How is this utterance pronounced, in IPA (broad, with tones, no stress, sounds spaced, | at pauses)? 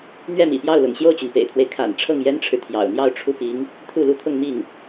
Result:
n̪ ɥ ɛ˥˩ m ḭ˨˩ p j ɑ˥˩ ʊ̯ l ʊ̰˨˩ ŋ ɕ j o˥˩ ʊ̯ t͡ɕ y˩ n p ḛ˨˩ ɪ̯ t̪ʰ w e˦ ɪ̯ kʰ a̰˨˩ n ʈ͡ʂʰ ɤ˥˩ ŋ j ɛ˥ n ʈ͡ʂʰ ɻ̩˨ t̪ʰ j ɑ̰˨˩ ʊ̯ n̪ j ɑ˥˧ ʊ̯ ʈ͡ʂʰ u˥˩ p i˧˥ ŋ | t̪ʰ u˥˩ l u˥ t̪ʰ ʊ˥˧ ŋ m i˥˩ ŋ